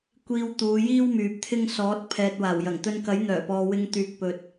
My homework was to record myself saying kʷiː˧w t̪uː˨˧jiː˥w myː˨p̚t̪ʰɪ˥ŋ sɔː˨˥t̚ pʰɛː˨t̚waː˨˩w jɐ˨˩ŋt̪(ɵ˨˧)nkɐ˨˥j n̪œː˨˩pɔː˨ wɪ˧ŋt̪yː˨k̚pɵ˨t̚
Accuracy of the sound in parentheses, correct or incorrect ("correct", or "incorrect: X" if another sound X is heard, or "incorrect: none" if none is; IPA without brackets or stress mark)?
incorrect: ɵ˧